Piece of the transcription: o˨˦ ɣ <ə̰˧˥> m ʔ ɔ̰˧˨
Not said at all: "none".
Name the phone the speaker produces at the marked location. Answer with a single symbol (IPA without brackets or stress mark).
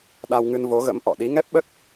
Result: ə̰˧˥